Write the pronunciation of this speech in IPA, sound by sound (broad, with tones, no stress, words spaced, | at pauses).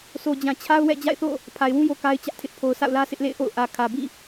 so˨d͡ʑã˨t͡ɕʰa˦ʊ̯wɛ̰˦˨ d͡ʑa̰˦˨ɪ̯θo̰˦˨ | pʰa˨ɪ̯wũ˦jo˨ ka˦ɪ̯t͡ɕä˦ʔtʰɪ˦ʔ pʰo˨ʊ̯sʰa̰˦˨ʊ̯lä˦ sʰɪ˦ʔlḛ˦˨ɪ̯ʔo̰˦˨ʊ̯ ʔä˨kʰä˨bḭ˦˨